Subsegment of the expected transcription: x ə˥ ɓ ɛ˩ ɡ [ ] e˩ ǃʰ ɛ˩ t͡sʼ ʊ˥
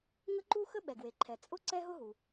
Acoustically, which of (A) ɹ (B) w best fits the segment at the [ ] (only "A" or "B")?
B